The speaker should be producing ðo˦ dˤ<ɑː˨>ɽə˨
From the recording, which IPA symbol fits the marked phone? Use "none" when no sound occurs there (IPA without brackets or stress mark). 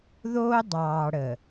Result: ɑː˨